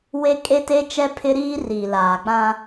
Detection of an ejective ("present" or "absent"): present